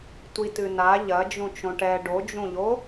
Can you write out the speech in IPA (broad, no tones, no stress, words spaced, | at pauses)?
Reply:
tʷitɨna ʎɐ d͡ʒũt͡ʃõʈɛ ɖod͡ʒũʎo